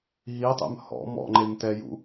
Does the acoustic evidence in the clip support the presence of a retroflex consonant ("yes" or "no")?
no